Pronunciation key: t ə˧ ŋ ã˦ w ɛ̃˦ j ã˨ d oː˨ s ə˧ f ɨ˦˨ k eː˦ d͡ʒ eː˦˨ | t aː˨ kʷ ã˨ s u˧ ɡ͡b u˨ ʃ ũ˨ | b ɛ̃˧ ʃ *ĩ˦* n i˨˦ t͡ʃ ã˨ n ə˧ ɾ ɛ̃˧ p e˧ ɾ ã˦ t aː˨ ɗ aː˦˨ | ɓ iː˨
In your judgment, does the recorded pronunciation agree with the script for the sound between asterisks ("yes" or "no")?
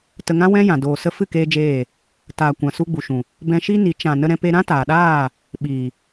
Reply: no